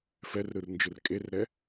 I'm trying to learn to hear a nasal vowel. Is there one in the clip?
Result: no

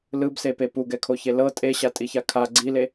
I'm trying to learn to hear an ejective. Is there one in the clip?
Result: yes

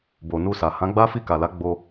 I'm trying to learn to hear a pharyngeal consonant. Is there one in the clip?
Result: no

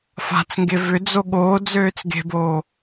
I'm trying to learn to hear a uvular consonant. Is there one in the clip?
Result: no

